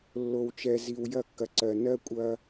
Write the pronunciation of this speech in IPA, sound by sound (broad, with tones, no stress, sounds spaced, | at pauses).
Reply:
lː o˨ w t͡ʃ ɛ˨ z i˨ w j ɐ˦˨ kː ɐ˨ ǀ ɜ˨ n ɜ˦ kʷʼ ɐ˦